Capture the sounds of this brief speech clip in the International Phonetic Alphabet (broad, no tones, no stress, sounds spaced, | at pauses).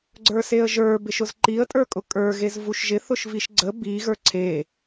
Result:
ɡ͡ǀ ə˞ s e ə̯ ʒ ə˞ b ɪ ʃ ʊ z ǃ i ə̯ tʼ ə˞ kʼ ʊ kʼ ə˞ ɣ e z v u ʃ ʒ ɪ θ ʊ ʃ v i ʃ ɡ͡ǀ ə b i ɣ ə˞ ǀʰ e